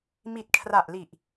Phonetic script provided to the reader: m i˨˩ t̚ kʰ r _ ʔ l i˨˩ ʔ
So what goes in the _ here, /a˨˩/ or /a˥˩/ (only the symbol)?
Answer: a˨˩